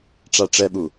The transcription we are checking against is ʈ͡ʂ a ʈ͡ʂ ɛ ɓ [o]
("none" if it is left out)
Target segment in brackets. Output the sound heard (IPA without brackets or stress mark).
u